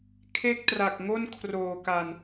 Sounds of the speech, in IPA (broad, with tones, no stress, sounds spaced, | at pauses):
kʰ e˥˩ k̚ t r a˨˩ k̚ ŋ o˥˩ n kʰ r oː˨˩ k a˨˩ n